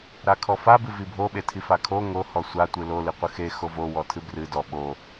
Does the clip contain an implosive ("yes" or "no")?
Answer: yes